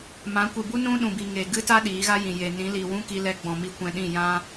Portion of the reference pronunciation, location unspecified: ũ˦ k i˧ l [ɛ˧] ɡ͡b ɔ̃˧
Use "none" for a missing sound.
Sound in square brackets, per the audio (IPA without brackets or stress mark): ɛ˧